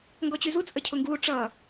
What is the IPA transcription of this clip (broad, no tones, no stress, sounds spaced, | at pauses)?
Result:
ŋ ɡ ɔ t͡ɕ y z u t͡sʼ ə cʰ ʊ ŋ ɡ uː ʈ͡ʂ ʌː